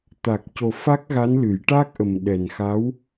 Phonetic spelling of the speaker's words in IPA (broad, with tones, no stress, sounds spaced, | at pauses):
t̪ a˨˩ k̚ c o˨˩ f a˦˥ k̚ ɣ a˧˥ n l ɨ˨˩˦ j ʈ aː˦˥ k̚ ʔ ə˨˩ m ɗ ɛ˨˩ n x a˧˥ w